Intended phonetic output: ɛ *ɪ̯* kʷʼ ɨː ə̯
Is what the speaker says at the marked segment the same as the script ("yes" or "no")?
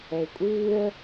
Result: yes